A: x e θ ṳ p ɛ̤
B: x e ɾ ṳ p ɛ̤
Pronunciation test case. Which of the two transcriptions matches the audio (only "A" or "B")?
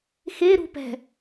B